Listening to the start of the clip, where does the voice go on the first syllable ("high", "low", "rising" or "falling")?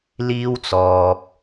high